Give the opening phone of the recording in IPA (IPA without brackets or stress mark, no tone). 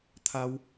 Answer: t̪ʰ